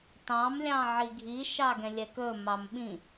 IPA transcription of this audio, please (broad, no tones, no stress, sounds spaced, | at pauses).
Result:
t ɑ̃ m lʲ ɑ̃ ʕ i ɡʱ i ʃ ɑ ɡ ɛ̃ lʲ ɛ k ɵ m ɑ m ɓ ĩ